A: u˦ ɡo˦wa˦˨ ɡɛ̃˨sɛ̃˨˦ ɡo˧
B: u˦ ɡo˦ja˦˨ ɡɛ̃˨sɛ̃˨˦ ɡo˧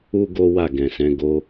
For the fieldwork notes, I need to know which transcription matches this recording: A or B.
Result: A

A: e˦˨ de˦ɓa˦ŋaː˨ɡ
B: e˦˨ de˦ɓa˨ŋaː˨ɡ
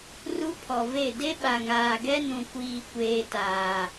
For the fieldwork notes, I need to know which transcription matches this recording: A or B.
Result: B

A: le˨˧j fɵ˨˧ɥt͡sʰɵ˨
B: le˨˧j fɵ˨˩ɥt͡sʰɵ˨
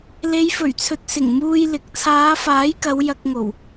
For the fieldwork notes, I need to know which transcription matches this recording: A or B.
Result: B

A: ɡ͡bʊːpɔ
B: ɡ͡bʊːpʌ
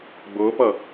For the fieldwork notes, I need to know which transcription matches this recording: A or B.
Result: B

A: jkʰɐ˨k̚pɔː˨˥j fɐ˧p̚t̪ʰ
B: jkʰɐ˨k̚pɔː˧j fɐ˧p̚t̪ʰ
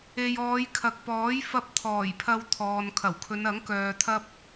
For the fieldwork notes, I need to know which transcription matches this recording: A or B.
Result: A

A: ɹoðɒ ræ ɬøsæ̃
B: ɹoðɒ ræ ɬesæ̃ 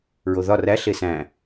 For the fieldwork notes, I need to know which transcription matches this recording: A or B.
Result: B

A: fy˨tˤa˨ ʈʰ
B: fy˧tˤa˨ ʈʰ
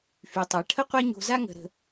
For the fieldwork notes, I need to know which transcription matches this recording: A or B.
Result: A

